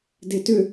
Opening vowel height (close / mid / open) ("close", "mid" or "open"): mid